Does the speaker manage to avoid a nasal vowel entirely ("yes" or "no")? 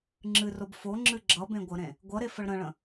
no